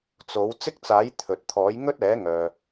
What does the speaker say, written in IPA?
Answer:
t͡s o˨˥ w t͡s ɪ˥ k̚ t͡s aː˨˥ j t̪ʰ ɵ˨ t̚ t̪ʰ ɔː˨˥ j ŋ ɵ˥ t̚ ɛː˨˥ ŋ œː˨

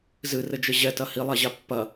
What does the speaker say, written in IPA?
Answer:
z ɨ r ɘ d͡ʒ ɘ ʑ ɛ t ɐ h i lˠ a ʑ a pː ɐ

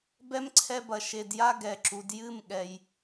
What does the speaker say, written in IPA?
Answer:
b ɛ˦ m ǀʰ ɛ˧ b ɐ˨ ʃ e˨ d j a˦ ɡ ɛ˨ ǁ u˨ d j ɨ˦˨ m ɠ ɛ˨ j

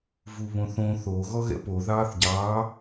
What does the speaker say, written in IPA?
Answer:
v u β õ θ õ θ o ɣ ɔ ɣ ɛ̰ p o ð ɑː θ ɟ ɑː

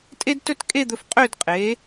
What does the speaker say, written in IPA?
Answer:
tʼ e˥ d t ɵ˥˧ t kʼ e˥˧ d̪ ɵ˧ f qʼ ø˥˧ d qʼ e˩˧

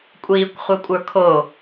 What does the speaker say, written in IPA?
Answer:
kʷʼ iː kʷ χʷ æ kʷʼ ə˞ kʰ o

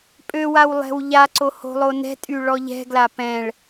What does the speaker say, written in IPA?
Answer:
pʼ ø w a w lˠ ɛ̤ w ʎ a ǀ o h o̤ lˠ o n ɛ̤ tʼ y ɭ ɔ ʎ ɛ̤ ɡ l a p ɛ̃ ɭ

